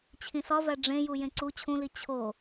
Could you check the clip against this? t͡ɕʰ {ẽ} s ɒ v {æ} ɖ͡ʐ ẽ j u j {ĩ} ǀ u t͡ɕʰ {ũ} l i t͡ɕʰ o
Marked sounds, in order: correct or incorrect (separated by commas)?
incorrect, correct, incorrect, correct